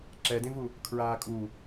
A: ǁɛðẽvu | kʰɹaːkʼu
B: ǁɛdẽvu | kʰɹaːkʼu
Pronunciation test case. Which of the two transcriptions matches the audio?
B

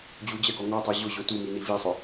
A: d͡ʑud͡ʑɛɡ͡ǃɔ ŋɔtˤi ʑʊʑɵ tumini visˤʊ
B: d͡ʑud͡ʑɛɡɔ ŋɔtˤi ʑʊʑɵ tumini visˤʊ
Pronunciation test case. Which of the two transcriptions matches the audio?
B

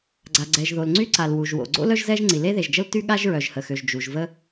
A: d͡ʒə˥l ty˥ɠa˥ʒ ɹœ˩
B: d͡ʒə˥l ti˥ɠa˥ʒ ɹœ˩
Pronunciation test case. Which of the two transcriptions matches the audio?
A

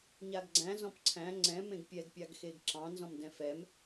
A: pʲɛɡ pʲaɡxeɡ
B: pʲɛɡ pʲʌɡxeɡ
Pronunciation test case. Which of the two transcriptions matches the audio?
A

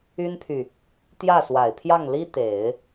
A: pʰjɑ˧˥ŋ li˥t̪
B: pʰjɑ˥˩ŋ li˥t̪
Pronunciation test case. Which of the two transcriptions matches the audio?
B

